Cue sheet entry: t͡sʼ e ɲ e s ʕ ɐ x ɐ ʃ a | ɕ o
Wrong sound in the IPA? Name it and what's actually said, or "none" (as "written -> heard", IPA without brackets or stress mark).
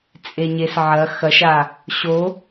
none